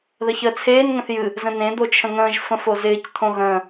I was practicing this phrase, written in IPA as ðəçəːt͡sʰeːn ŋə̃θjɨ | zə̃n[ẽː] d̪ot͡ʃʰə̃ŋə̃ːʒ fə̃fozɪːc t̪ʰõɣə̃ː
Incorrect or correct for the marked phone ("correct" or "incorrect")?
incorrect